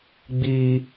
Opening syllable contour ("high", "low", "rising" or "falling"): high